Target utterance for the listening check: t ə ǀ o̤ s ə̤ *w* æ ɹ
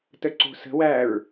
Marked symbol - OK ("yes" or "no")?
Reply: yes